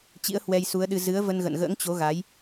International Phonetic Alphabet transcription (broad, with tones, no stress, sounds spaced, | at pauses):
t͡ɕ ḭ˧˥ ə̯ h w ɛ˧ j s u˨˦ ə̯ ɗ ɨ˧ z ɨ˨˦ ə̯ v ə˧ n ɣ ə̰˧˨ n ɣ ə̰ː˧˥ ŋ t͡ɕ o˨˦ ɣ a˨˦ j